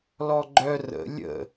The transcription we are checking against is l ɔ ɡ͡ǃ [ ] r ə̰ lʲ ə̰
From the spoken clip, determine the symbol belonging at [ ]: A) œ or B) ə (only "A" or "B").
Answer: A